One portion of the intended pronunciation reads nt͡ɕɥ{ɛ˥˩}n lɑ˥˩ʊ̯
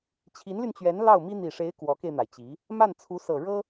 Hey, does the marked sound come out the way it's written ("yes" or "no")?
no